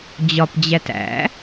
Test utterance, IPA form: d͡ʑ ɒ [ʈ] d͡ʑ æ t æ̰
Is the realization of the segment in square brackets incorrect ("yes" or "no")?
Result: yes